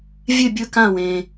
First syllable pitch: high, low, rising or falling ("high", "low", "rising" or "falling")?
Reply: falling